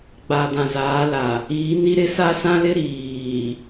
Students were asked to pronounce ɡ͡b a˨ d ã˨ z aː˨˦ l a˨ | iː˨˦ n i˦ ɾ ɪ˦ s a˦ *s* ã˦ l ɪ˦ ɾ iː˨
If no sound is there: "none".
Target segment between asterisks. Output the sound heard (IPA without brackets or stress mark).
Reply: s